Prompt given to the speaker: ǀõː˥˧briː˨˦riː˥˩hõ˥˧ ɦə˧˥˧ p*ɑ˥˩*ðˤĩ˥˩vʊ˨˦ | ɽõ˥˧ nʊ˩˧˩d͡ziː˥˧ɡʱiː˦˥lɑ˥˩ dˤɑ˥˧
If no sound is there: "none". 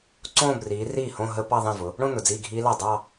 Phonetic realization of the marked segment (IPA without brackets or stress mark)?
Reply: ɑ˥˧